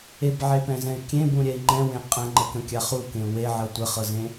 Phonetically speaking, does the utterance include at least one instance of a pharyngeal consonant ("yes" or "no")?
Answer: yes